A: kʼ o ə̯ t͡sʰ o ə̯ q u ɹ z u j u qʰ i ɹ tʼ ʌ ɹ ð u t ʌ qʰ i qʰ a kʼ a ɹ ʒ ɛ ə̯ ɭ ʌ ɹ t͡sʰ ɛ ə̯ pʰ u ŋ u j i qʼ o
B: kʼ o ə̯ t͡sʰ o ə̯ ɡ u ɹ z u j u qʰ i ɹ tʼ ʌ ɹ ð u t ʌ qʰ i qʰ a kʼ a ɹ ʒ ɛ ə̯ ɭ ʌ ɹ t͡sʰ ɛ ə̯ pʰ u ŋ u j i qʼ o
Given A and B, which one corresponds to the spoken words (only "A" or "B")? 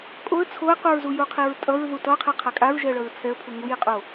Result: A